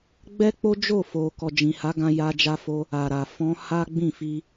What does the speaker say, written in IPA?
ɡ͡b ɛ˦ k͡p o˦ d͡ʒ o˦˨ f o˨ k ɔ˨ d͡ʒ ĩ˨ h a˨˦ ɡ ã˧ j a˧ d͡ʒ a˧ f o˧ | a˨ ɾ a˨ f ɔ̃˧ h a˦ ɡ͡b ĩ˦˨ f i˧

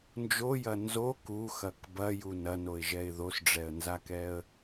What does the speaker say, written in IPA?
n d͡ʒ o j ɐ n z o k u x ɐ k b ɐ j u n ɐ n o ɪ̯ ʒ ɛ ɪ̯ ð o s ɖ͡ʐ ɛ ə̯ n z a k ɛ ə̯

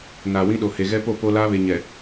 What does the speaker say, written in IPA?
n aː˨ w ĩ˦ ɗ o˨ h e˨ ɣ ɛ˦ p o˦˨ p o˦ l aː˦ β e˨ ɲ ɛ˨

